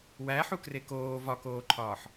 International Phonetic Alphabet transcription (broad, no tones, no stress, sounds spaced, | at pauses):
w æ ħ u k r e k oː v ɒ k oː ǃʰ ɒː ħ